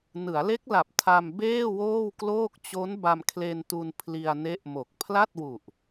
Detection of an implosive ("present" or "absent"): absent